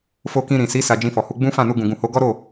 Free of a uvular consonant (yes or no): yes